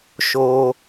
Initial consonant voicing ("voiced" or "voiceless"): voiceless